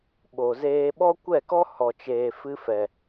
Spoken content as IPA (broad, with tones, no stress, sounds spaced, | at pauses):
ɓ o˨ z eː˧ ɓ ɔ˦ kʷ ɛ˦˨ k ɔ˦ h ɔ˨ t͡ʃ eː˨ f ɨ˧ f ɛ˨